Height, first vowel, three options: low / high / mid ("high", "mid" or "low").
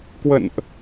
mid